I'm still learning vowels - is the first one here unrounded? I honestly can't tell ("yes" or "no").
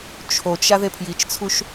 no